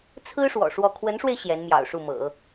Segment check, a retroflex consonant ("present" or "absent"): present